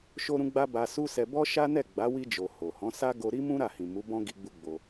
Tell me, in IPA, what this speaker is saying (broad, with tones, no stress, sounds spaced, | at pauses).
ʃ o˦ ɾ ũ˦ ɡ͡b a˦ b a˧ s u˦ s ɛ˧ b ɔ˦ ʃ a˦ n ɛ˦˨ ɡ͡b a˨˦ w i˧ d͡ʒ o˨ h o˨ h ɔ̃˨˦ s a˦ ɡ o˧ ɾ i˦ m ũ˦ ɾ a˦˨ h ĩ˨ m u˨˦ b ɔ̃˦ ɡ i˧ ɡ͡b u˧ ɡ͡b o˧